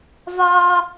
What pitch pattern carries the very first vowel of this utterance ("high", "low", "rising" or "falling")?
high